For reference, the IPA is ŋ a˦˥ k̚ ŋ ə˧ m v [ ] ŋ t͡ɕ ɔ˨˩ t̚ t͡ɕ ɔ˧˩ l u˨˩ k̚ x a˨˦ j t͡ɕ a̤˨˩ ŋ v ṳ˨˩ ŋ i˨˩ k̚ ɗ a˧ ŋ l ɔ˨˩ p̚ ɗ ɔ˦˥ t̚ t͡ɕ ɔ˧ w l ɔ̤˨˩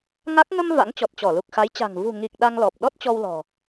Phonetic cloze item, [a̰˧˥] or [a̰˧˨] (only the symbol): a̰˧˥